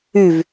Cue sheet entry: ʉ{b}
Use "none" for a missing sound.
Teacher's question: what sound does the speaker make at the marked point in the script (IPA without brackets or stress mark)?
v